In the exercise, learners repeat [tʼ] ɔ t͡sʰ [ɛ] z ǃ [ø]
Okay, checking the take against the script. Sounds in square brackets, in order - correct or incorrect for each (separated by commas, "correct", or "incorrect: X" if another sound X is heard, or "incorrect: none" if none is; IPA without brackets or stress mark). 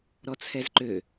incorrect: ɾ, correct, correct